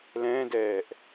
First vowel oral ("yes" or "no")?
no